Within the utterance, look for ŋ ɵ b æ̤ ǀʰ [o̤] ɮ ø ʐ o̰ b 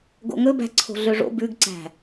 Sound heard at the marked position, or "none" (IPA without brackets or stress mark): o̤